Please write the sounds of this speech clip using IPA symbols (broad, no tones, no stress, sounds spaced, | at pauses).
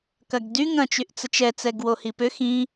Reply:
k ɐ ɡ d y ŋ ɐ̃ t͡ʃ y ʔ t͡s ə t͡ʃ ɛ t͡s ɛ ɡ w o h i p ʏ x ĩ